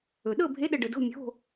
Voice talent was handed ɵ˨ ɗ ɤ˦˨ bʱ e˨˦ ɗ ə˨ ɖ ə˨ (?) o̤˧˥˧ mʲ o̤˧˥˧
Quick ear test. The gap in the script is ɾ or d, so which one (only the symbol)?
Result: d